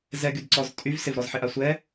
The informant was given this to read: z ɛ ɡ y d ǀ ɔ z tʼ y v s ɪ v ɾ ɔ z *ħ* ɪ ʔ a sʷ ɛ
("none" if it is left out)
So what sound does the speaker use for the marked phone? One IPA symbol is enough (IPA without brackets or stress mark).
ħ